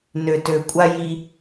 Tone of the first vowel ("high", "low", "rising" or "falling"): low